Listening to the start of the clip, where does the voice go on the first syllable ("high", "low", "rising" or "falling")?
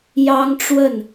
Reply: high